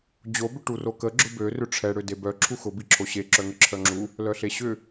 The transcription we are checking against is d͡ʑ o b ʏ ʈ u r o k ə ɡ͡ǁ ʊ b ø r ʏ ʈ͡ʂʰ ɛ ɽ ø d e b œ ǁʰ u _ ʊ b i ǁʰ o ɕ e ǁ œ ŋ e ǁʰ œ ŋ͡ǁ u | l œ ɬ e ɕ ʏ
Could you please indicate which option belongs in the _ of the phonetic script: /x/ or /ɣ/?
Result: x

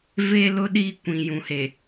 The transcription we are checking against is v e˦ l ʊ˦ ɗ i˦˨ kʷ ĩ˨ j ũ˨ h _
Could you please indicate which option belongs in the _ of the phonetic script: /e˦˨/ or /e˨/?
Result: e˨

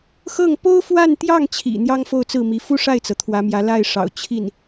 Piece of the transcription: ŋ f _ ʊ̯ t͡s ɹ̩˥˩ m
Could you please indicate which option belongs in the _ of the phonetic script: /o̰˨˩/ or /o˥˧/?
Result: o˥˧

